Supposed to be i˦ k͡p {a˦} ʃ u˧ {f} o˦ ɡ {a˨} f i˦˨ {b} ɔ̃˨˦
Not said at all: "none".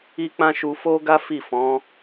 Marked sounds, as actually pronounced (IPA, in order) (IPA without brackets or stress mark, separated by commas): ã˦, f, a˦, f